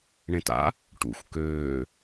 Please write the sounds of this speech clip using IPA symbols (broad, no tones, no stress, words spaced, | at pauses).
ɳẽta̰ | ʈṵxʷ køː